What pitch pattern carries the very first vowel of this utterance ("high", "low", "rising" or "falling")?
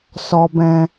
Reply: low